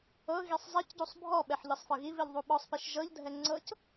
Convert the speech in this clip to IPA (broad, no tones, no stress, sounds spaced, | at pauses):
ɤ ɣ i sˤ zˤ ɛ c ɟ u sˤ bʱ ɔ ɓ ɛ ħ ʎ ɤ sˤ f ɤ ɣ i v i ʎ ðˤ u ɓ ɔ sˤ p i ʃ ʒ ɤ ʎ dʱ ɛ ŋ͡ǀ ɤ c